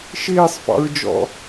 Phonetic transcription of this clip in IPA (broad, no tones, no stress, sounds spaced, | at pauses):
ʃ ɪː sˤ f ɑ̰ ɹ d͡ʒ ɔ̰